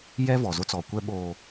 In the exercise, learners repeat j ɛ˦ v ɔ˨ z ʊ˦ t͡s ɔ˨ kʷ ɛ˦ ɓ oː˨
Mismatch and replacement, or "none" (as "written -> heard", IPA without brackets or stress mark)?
none